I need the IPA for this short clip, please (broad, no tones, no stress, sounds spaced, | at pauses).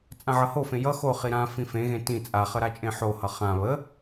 t͡sʼ ã ʕ ʌ h o f ẽ j ʌ x o χ i ɾ ã f ĩ f ẽ ɣ ẽ t ĩ t͡sʼ a χ ə ɾ a t͡ʃʼ ẽ ħ o h ʌ χ ã β ə